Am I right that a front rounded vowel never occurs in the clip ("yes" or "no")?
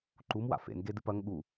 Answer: yes